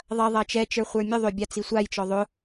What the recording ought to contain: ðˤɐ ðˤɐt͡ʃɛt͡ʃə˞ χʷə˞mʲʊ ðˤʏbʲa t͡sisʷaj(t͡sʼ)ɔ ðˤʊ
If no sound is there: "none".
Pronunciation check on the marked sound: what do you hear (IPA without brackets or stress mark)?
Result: t͡ʃ